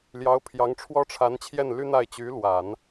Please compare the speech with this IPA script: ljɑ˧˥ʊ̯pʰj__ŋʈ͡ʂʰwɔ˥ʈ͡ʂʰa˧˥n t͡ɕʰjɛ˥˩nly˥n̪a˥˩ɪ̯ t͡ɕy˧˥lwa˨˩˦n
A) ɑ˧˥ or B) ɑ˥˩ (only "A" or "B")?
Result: A